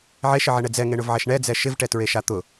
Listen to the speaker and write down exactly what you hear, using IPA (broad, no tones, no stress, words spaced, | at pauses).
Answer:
ʕeʃɪʕɛɳɛ d͡zɛŋeɳʊvʕɛʃ ɳɛd͡zɛ ʃɪvʈɛtɹeʃa t̪ʊ